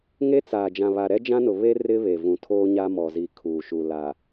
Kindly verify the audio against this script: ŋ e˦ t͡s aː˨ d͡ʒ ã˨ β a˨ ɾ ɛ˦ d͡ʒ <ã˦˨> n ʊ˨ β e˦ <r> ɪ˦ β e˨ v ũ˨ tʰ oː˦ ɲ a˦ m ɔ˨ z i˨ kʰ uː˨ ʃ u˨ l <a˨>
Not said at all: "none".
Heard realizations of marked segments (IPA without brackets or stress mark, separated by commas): ã˦, r, a˨